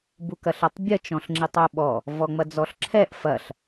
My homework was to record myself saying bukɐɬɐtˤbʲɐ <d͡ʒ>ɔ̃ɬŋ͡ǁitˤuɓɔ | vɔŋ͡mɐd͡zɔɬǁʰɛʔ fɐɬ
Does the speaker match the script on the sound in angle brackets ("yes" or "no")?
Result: no